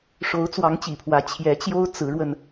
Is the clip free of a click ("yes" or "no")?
yes